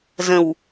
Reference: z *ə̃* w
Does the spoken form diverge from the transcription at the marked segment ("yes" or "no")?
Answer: no